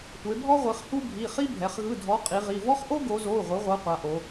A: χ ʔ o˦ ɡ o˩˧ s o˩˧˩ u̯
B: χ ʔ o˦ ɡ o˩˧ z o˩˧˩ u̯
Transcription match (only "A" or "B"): B